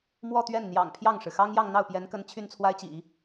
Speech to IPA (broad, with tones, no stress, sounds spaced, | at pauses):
m w ɔ˥˧ t̪ ɥ ɛ˥˩ n n̪ j ɑ̰˨˩ ŋ pʰ j ɑ˥˩ ŋ ʂ ɻ̩˩ x ɑ˥ ŋ j ɑ˥˧ ŋ n̪ ɑ˥˩ ʊ̯ p j ɛ˧˥ n k ə˧˥ n t͡ɕʰ y˥˩ n t͡sʰ w a˥ ɪ̯ t͡ɕ ḭ˨˩˦